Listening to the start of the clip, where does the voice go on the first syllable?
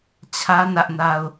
high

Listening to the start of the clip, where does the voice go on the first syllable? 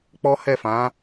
high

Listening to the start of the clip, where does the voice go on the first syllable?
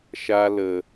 high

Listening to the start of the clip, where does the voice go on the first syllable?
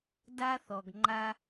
high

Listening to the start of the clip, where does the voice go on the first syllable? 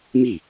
falling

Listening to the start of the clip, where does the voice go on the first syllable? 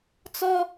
high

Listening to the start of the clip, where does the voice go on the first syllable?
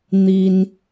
high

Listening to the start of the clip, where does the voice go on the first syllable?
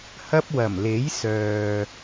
high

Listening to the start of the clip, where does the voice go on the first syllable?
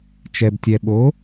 low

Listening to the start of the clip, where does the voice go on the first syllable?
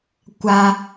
high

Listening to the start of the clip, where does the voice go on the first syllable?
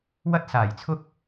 high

